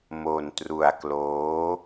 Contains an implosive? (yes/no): no